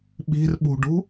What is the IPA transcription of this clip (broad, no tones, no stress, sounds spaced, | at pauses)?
ɓ i̤ r ɓ ṳ ɖ ṳ